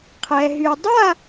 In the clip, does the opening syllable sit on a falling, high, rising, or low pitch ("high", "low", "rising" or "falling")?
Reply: low